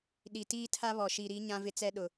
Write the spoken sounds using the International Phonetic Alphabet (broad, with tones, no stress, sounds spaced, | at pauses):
ɗ i˨ t iː˦ tʰ a˦ β ɔ˨ ʃ i˨ ɾ i˨˦ ɲ ã˦ v ɪ˦ t͡s ɛ˦ ɗ ʊ˨